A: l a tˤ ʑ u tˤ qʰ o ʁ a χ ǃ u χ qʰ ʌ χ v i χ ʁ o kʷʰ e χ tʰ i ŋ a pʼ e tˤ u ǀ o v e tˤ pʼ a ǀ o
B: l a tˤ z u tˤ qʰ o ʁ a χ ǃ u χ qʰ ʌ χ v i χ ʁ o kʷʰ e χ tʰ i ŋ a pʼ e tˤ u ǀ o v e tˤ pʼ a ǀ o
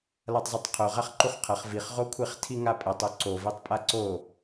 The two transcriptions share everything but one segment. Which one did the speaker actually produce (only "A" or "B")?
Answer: B